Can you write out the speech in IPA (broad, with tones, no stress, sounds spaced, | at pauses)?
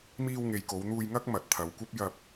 m iː˧ w ŋ e˨ j k o˨˧ w n̪ uː˧ j ŋ ɐ˥ k̚ m ɐ˨˥ t̚ t̪ʰ ɐ˨˧ w kʷ ɐ˥ p̚ j ɐ˧ p̚